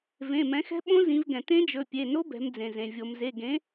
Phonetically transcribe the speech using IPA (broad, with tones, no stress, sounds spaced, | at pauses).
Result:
v ẽ˩˧˩ m ɛ̃˩˥ x ɛ̤˧˥ ɓ õ˧˥ z ĩ˩˧ v ɡ ɛ̃˩ t ẽ˧˥ d͡ʒ ɵ˩˧˩ pʲ e˩˧˩ n o˧˥ b ɛ̤˩˧ m d͡z ẽ˩ z ẽ˩ vʲ o˩ m z e˩˧˩ ɡ ẽ˩˥